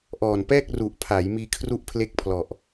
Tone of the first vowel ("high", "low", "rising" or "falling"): low